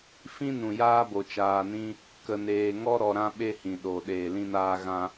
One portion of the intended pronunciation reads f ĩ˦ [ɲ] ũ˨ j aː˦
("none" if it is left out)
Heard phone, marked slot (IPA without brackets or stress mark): n